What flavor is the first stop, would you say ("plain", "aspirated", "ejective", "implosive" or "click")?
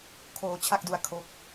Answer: aspirated